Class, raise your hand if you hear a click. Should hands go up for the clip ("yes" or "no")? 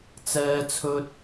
no